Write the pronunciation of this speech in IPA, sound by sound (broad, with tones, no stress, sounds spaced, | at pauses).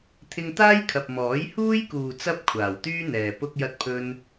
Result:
t̪ʰ ɪ˧ ŋ t̪ aː˥ j kʰ ɐ˨ p̚ m ɔː˨˥ j h uː˥ j k uː˨ t͡s ɐ˥ p̚ kʷʰ aː˨˩ w t̪ yː˥ n̪ ɛː˨ p ʊ˥ k̚ j ɐ˥ t̚ pʰ ɵ˥ n